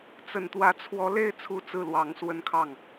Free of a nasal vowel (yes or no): yes